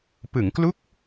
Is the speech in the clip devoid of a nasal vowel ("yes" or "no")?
yes